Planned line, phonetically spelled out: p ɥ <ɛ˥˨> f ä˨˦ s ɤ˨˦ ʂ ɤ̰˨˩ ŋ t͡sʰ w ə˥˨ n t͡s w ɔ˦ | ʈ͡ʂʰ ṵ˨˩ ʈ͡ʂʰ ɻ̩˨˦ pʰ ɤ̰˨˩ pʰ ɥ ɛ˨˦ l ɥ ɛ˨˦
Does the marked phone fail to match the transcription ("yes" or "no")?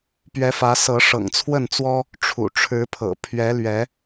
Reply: yes